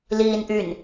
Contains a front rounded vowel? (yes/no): yes